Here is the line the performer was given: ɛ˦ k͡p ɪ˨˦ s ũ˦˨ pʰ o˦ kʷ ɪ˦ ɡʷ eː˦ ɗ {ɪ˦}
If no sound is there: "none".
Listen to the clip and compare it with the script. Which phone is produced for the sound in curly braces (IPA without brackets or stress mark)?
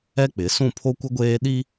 i˦